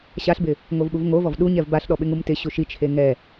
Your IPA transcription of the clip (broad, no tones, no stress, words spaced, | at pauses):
ɕaɬbɪ | ŋovɓuvŋovɔv ɗu ɲɛvbaɬɗɔ ɓɪŋumtɪɕu ʃit͡ʃʰe ŋɛ